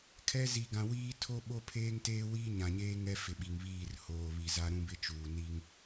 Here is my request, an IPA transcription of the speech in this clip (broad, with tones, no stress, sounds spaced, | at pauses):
kʰ ɛ˦ z i˨ ɡ ã˨ w iː˦ tʰ o˦ ɓ o˦ pʰ eː˦ ŋ t eː˦ w iː˦ ɲ ã˨ ɲ eː˦ ŋ ɛ˦ f ɪ˨ ɓ i˨ ŋ β iː˦˨ r h oː˨ β i˨ z a˦ ɾ ũ˦ b ɪ˦ t͡ʃ uː˨ n i˦ ŋ